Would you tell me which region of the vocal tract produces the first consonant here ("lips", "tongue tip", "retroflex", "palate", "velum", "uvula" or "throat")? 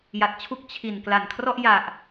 palate